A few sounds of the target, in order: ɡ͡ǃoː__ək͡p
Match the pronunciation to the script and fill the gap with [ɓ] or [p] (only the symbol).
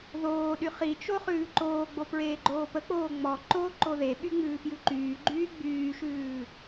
p